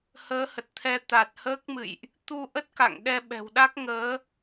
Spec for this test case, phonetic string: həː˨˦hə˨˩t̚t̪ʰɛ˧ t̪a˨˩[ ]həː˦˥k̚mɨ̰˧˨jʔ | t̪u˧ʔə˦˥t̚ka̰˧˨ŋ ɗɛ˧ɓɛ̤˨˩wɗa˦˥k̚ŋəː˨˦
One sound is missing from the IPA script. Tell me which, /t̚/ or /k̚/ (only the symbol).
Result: t̚